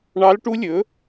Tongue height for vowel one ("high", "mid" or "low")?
low